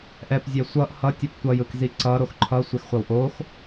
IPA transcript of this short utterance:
ʔɛpzʲɛ sʷʌʔ hʌtʲʌp tʷʌjɯkzi ǀʌɾox ǃʰʌsʷexχʷʌw ʔox

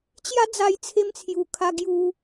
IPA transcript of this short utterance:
t͡ɕja˦d͡za˧jt͡sʰe˧m t͡sʰju˨˩ kʰa˧ ɡju˧

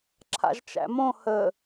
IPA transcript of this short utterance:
ǁʰa̰ʒt͡ʃæ̰mõ hə

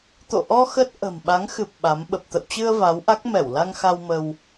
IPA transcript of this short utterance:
t̪o̰˧˨ʔɔ˧ xə˦˥t̚ ʔə̤˨˩m ɓa˨˦ŋxɨ˨˩p̚ ɓa˨˦m ɓə˨˩p̚t̪ə̰˧˨wt͡ɕɨ˧ə̯ va˨˦wʔa˦˥k̚ mɛ˧˩wla˧ŋxa˧w mə˧w

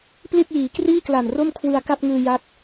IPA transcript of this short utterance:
pli˥˩t̚jiː˩˦ kriː˥˩kla˨˩n ro˥˩mkʰwɯ˧a̯ ka˥˩p̚ŋɯː˧ja˦˥t̚

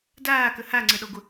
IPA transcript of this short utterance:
daːkə haŋ͡ǀəɗɔɡʷə

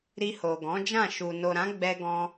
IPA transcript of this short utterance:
ɾi˧ho˨ɡɔ̃˨˦d͡ʒã˦˨ ʃu˨no˨ɾã˨˦ɡ͡bɛ˧ ɡɔ̃˧

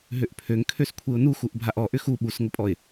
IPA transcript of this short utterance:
ɦøʔpʰøŋkʰøskʷʰeʊ̯ nuxuʔ bʱaʔɔʔʏ xu ɓusŋəpʼɔɪ̯

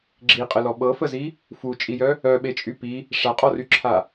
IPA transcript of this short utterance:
ɡ͡ǁiqʼəlɔ ɓɤfəzi | fut͡ʃʼijœ | œɓet͡ʃʼy pi | ʂaqʼɔryǁʰa

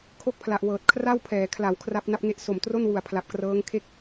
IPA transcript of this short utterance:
kʰo˥˩k̚pʰla˨˩ʔwɤː˨˩t̚ kʰra˥˩wpʰɛː˩˦kʰla˩˦w kʰra˦˥p̚na˦˥p̚ŋe˦˥ʔ so˨˩mtro˥˩nwu˨˩a̯ pʰla˨˩p̚krɤː˦˥ŋkʰe˥˩k̚

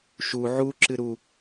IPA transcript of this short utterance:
ʃu ʕu ǁɨɾu

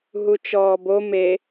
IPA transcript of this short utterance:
ɦut͡ʃɔːbo me

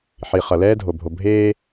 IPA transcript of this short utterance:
ħi˨ χʌ˨lɛː˦dʱo˨ bʱo˨bʱeː˦

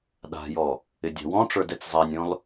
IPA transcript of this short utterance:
ɗa̤jɔ | ɪdʲa̤wɔ̃ʈ͡ʂə˞d ɛt͡szˤanʲɔ̃l

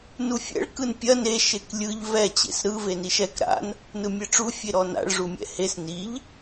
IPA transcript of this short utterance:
nufʲɛ̰ɭ kɯnpʲɐ ne ʃeklʲɯʎ vɛ t͡ɕḛsɾɯ veniʃɛk ɾa̰n | nɯmʲɛʈ͡ʂu fʲeɾɔna̰ɭ ʐumʲɛ̰hes niʎ

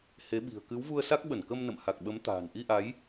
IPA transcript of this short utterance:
he˨˦ɓi̤˨˩ə̯ kɨ˨˦wvu˧ə̯sa˦˥k̚ ɓə˧˩nkə˧mnə̰˧˨m ha˨˩k̚ɓə˨˦m t̪a̤ː˨˩nʔi˧ʔa˨˦j

